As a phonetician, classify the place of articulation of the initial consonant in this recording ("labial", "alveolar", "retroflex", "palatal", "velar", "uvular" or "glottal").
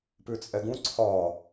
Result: labial